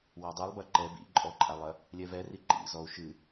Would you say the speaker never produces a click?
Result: no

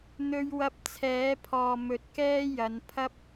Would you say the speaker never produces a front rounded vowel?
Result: yes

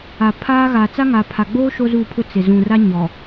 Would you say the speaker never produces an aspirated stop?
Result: no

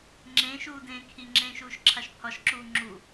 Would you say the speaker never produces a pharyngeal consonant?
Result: yes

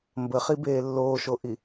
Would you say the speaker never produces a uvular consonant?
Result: no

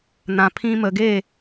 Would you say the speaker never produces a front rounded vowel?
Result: yes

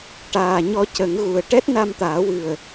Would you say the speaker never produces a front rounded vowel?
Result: yes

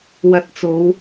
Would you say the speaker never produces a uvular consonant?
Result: yes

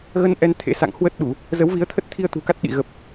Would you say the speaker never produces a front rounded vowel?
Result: yes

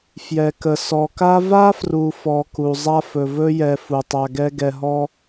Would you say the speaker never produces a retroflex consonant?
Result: yes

